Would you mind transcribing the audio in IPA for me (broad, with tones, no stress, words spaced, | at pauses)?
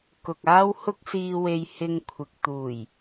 kʊ˨k̚aː˥whʊ˥k̚ siː˧we˧jhɪ˧ŋ kʷʰɪ˨k̚t̪uː˨˩j